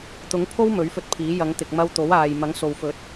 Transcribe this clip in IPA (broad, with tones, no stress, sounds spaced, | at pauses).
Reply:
t̪ ʊ˨˥ ŋ pʰ o˥ w m ɵ˨˥ ɥ f ɵ˧ t̚ pʰ iː˨˥ j ɐ˨˧ ŋ t̪ ɪ˨ k̚ m ɐ˧ w t̪ o˨˥ w aː˨ j m ɐ˨˥ ŋ s o˨ w f ɵ˨˥ t̚